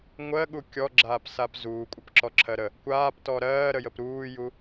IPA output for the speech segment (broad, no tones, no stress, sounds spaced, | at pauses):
ŋʷ ɜ ɠ u kʲ ɔ ɡ͡ǁ aː p s a p z uː kʷʼ ə p ǁ ɔ ǁʰ ɜ ɾ ə | kʷ aː p t ɔ ɾ ɜː ɾ ə j ə p ɾ uː j u